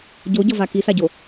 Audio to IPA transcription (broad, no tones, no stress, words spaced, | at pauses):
ɟoɟʌva kisaɟo